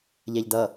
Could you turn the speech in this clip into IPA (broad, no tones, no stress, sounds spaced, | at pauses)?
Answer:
ʎ æ ʎ d ʌ